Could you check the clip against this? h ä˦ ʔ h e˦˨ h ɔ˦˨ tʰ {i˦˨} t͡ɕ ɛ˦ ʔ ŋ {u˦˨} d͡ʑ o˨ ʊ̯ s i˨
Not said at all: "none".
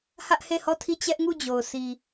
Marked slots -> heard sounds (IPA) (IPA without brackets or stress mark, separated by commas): i˦˨, u˦˨